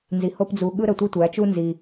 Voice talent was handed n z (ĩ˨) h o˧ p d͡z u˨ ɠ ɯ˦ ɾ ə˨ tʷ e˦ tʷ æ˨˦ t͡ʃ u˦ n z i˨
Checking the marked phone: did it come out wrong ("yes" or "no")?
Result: yes